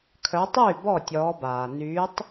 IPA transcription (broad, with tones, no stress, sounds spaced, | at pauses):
kʰ œ˨˦ tˤ yː˥˩ b ɔ˥˩ tʲ ɔː˨˦ b aː˩ n yː˨˦ tˤ